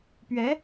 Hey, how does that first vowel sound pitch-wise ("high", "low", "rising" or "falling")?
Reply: rising